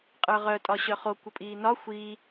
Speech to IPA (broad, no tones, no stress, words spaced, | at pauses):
qʼə˞ʁœ tʼɒɕœχo kʷəpʼiːnɒ xʷiː